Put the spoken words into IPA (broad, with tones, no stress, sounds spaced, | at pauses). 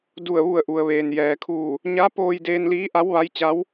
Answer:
d u˧˩ ə̯ ʋ u˧˩ ə̯ ʔ u˩ ə̯ ʋ eː˩ n j ɛː˩ kʰ uː˧˩ | ɲ a˧˥ p oː˧ j d eː˧ n l iː˧˥ ʔ a˧˥ w ʋ a˧˥ j t͡ɕ a˧˥ w